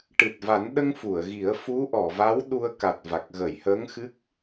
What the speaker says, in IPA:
ʈ ɨ˨˩ t̚ v a˨˩˦ n ɗ ə˧ ŋ f u˨˩˨ ə̯ ɣ i˨˩˦ ə̯ f u˧˥ ʔ ɔ˨˩˨ v a˧˥ w ɗ u˧ ə̯ k a˨˩ t̚ v a˨˩ k̚ ɣ ə˨˩˨ j h əː˧˥ ŋ x ɨ˦˥ k̚

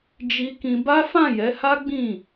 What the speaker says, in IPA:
d͡ʒ i˧ k ĩ˧ b a˦ f ã˦˨ j ɛ˨˦ h a˦ ɡ͡b ĩ˦˨

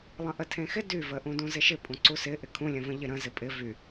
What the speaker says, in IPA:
lˠ ə̃ ʔ ə tʰ ẽ x ɪ d y v ə ʔ ũ d ũ z ɪ ʃ ɪ pʼ ũ ǀ u s ɪ ʔ ɪ kʰ ũ lʲ ə̃ v ə̃ ʎ ɪ ɾ ə̃ z ɪ pʼ ɪ v y

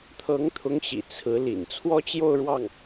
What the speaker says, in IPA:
t̪ʰ ɤ˧˥ ŋ t̪ʰ ʊ˧˥ ŋ ɕ ḭ˨˩ t͡sʰ ɹ̩˧˥ l ḭ˨˩ n t͡sʰ w ɔ˥ t͡ɕ j o˥˧ ʊ̯ ɻ w ɑ˥˩ ŋ

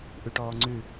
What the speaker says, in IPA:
ʔ ʉ ʈ ɔː ŋ͡ǀ ʉ

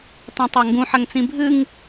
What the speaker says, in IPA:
tˤ ũ tˤ a ŋ ɡ ũ ħ ɐ ŋ t͡s ĩ bʱ ɨ ŋ

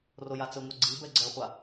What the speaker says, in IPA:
r o j a t͡s ɘ ŋʷ a ɡ͡ǀ i b ɛ ɡ͡ǀ ɛ χʷ a

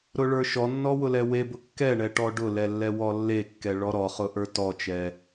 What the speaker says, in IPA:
ɾ ʊ ɭ ə˞ ʃ ɔ nː ɔ w ʊ l ɛ w e b ʊ kː ɛ ɳ ɛ ʈ ɔ ɖ ʊ l ɛ lː ɛ w ɔ lː e kː ɛ ɭ ɔ ɾ ɔ χ ʊ ʔ ə˞ t ɔ t͡ʃ ɛ

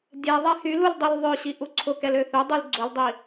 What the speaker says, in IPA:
dʲ ɛ ðˤ ɛ h y l u l dˤ i l ðˤ ø ɕ i ʔ u ǀʰ ʊ k ɛ l ø θ ø dˤ y l ɡ͡ǀ ʊ l dˤ i

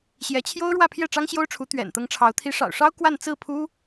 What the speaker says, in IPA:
ɕ j ɛ˧˥ t͡ɕʰ j o˥ ʊ̯ ɻ w ä˥˧ pʰ j ɛ˥˩ ʈ͡ʂ ɑ˥ ŋ ɕ j o˥ ʊ̯ ʈ͡ʂʰ u˧˥ t̪ ɥ ɛ̰˨˩ n t̪ ɤ˧˥ ŋ ʈ͡ʂʰ ɑ˧˥ ʊ̯ t̪ʰ i˧˥ ʂ ɑ̰˨˩ ʊ̯ ʂ ɑ˥ ʊ̯ k w a˥˧ n t͡s ɹ̩˥˩ pʰ u˥

